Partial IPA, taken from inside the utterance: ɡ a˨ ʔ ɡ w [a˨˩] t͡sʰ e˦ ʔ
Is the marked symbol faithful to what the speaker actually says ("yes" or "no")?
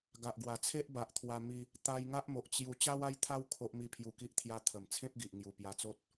yes